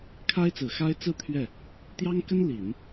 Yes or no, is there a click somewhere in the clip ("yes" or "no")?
no